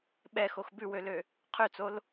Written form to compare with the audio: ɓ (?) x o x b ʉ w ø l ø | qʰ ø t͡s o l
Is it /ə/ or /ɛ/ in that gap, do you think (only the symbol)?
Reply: ɛ